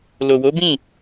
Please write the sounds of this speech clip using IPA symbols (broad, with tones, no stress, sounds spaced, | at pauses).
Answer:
l o˨ w o˨˦ b ĩ˦˨